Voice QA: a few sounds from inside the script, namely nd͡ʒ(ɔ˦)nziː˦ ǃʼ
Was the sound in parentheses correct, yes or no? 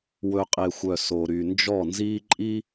no